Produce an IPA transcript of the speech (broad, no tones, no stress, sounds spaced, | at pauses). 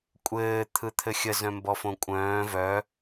kʷʼ ɘː t̪ʰ ɯ t̪ʰ ɘ xʲ ə z œ̃ m b ɔ f õ kʷʼ œ̃ː v œ